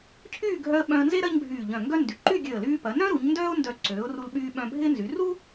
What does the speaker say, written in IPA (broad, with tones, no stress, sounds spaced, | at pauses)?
cʰ yː˥˧ ɡʱ œ˧ ə̯ ɓ œ̃˧ ə̯ n z e˥ ɾ ɐ˥ ɲ bʱ yː˧˩ ʎ œ̃˧˩ ŋ ɡ œ˥ n d y˩˧ ǃ yː˥˧ ɡʲ ø˧˩ ə̯ l yː˧ p ɐ˩˧ n œ̃˥ ɾ u˩˧ ɲ n d œː˥ ʊ̯ n d œ˧˩ ǀ øː˩˧ ʊ̯ r u˧ l ɓ yː˧ ɓ œ̃˧ bʱ ɪː˥ n z y˩˧ r u˥